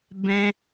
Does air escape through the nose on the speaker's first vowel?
yes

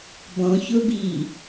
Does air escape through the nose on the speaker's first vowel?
yes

